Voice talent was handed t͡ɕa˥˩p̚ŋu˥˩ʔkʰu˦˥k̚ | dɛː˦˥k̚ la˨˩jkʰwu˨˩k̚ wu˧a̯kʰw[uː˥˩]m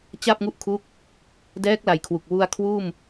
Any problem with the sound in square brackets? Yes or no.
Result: no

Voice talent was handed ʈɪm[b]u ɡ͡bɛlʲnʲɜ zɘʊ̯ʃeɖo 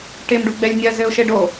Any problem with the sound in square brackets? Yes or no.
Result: yes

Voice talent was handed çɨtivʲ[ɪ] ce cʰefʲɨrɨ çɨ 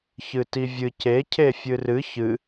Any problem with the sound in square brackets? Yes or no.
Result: yes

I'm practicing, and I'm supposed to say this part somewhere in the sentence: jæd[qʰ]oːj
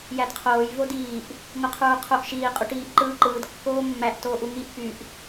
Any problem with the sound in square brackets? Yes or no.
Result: no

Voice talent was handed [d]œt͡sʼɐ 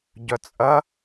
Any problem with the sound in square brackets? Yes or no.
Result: yes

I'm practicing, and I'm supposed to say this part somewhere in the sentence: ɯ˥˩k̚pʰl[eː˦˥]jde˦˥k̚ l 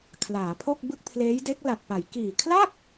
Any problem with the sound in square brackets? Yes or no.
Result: no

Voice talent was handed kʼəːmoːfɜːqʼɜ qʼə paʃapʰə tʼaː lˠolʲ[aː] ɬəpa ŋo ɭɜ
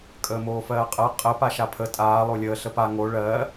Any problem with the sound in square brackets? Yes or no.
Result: yes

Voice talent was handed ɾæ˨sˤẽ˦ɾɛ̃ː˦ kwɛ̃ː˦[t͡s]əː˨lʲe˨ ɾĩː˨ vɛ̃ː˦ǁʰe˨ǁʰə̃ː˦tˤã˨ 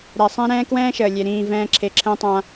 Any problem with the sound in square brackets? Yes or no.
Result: yes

